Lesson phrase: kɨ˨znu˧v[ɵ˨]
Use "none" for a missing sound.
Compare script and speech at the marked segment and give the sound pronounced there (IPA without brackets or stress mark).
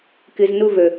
ɵ˨